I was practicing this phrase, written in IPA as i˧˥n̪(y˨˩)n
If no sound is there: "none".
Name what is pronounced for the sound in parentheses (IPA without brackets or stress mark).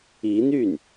y˥˩